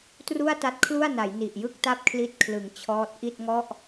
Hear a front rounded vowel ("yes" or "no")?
no